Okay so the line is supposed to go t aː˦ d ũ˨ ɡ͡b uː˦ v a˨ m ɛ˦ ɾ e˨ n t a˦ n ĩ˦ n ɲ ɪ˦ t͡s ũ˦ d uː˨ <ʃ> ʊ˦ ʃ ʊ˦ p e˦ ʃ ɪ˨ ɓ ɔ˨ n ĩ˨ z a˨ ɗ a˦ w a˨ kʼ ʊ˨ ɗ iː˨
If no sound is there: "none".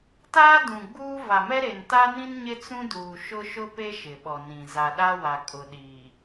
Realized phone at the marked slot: ʃ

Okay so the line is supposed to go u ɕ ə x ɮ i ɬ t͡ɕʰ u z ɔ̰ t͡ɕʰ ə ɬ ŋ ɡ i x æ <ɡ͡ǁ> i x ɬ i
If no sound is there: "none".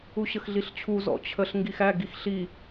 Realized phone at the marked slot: ɡ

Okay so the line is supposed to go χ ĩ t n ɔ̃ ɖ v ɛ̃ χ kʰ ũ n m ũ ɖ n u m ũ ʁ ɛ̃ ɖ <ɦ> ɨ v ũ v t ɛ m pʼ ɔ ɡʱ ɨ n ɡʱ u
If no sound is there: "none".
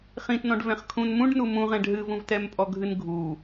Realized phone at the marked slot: ɦ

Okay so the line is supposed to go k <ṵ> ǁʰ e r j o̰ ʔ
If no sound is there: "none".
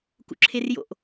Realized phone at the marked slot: ṵ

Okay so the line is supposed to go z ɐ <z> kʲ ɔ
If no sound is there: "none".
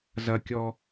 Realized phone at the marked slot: none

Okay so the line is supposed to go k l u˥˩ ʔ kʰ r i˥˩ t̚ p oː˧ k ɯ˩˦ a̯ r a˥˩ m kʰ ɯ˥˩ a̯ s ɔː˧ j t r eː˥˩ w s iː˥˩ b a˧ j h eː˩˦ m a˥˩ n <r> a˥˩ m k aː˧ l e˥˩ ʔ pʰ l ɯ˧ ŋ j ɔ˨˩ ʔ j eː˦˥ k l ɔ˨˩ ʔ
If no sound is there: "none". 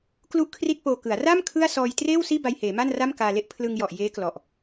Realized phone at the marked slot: r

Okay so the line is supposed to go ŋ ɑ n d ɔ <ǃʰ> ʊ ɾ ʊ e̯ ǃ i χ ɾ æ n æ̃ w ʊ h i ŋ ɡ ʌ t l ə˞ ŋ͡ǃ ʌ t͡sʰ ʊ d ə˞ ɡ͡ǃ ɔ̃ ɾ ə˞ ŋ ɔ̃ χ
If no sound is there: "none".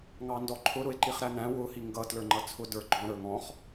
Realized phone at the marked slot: ǃʰ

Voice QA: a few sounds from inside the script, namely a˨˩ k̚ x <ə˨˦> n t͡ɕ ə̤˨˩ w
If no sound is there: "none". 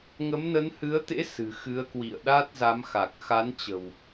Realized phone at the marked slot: a˨˦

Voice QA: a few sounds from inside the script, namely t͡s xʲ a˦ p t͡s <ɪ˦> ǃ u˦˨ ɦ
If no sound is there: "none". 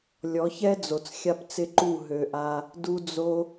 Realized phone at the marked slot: ɪ˦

